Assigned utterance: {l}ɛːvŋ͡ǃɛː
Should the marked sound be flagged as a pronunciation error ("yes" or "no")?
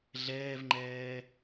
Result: yes